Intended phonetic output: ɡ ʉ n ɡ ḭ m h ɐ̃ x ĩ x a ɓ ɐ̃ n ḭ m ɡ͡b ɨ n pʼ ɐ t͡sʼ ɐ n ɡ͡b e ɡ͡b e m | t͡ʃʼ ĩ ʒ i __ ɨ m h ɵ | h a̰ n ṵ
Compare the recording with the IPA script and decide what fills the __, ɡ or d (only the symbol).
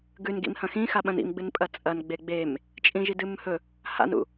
d